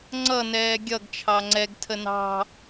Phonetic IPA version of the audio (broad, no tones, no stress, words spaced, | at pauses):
ŋ͡ǀʌ nɛːɡʲʌɡ t͡ʃʰɑŋ͡ǀɛɡ tʰənɑ̤